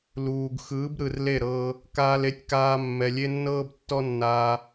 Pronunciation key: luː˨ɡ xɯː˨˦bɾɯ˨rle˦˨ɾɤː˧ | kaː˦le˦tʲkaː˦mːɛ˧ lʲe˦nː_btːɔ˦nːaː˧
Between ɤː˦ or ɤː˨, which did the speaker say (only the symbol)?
ɤː˦